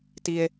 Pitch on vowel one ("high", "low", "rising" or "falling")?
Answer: high